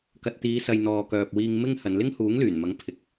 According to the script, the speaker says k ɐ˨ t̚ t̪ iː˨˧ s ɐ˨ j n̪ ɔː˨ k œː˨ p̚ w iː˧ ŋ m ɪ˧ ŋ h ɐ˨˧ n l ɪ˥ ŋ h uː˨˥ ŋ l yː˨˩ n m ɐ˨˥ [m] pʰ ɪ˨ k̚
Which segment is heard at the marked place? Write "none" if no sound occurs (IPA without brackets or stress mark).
ŋ